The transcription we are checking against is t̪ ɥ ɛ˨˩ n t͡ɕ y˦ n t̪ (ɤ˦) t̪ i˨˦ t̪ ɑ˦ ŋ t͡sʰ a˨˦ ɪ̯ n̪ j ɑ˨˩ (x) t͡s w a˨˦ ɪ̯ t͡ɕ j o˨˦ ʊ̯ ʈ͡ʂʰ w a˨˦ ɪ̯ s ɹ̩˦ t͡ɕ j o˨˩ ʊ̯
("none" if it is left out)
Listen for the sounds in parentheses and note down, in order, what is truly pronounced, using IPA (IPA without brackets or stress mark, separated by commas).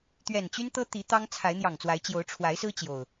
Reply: ɤ˦, ŋ